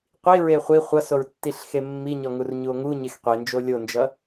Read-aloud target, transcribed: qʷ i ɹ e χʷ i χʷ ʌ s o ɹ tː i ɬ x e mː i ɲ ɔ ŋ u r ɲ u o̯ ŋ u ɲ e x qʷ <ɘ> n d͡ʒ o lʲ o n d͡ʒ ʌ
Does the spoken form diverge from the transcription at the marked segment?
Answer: yes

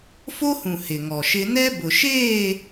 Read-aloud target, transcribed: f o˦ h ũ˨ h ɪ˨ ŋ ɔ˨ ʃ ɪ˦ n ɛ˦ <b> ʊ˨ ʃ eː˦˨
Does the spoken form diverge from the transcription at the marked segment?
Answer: no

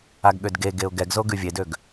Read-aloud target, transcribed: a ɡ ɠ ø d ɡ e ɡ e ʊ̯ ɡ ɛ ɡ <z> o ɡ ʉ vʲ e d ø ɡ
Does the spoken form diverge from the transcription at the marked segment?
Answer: no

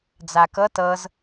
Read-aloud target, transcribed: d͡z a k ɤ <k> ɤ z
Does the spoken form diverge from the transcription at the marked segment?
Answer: yes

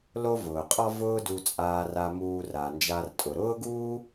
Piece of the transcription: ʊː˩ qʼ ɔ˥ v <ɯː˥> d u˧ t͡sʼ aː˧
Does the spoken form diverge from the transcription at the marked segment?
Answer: yes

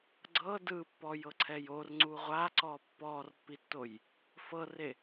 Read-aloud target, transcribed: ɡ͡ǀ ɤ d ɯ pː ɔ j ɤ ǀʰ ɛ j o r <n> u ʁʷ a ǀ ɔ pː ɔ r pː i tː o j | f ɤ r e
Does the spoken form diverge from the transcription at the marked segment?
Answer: yes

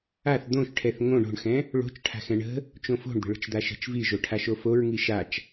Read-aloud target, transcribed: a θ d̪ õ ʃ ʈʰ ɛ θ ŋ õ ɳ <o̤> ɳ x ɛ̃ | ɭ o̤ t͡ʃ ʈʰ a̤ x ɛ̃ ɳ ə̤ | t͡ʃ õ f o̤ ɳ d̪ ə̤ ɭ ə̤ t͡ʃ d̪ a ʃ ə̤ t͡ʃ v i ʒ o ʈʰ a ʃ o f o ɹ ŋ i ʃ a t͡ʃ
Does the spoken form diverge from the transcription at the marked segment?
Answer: no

